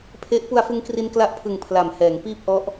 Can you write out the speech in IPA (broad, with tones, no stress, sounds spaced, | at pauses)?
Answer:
pʰ e˦˥ ʔ p u˧ a̯ f ɯ˧ ŋ k r i˧ n k l a˦˥ ʔ pʰ ɯ˨˩ ŋ pʰ l a˨˩ m h ɛː˩˦ ŋ p iː˥˩ p̚ ʔ ɔ˦˥ ʔ